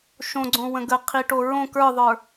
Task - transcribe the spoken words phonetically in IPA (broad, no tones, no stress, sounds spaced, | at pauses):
ʃ õ ɡ͡ǀ õ w ə̃ ɡ ə qʰ i ʈ o ɹ õ k ə˞ ðˤ ə˞